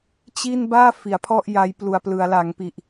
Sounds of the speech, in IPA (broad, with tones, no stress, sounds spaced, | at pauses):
t͡ɕ i˥˩ n b aː˥˩ f i˩˦ a̯ pʰ ɔ˥˩ ʔ j a˦˥ j p l u˨˩ a̯ p l ɯ˩˦ a̯ l a˩˦ ŋ p i˨˩ ʔ